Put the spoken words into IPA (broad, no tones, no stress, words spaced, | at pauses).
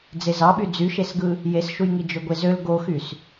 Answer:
d͡zezɑɓy d͡zyʃesɡɯ | jesʃujŋi d͡ʒøɡʷezøl ɡoxys